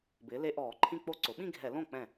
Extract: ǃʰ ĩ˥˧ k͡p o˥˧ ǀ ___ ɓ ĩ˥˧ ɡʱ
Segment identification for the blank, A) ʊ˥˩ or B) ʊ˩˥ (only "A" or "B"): B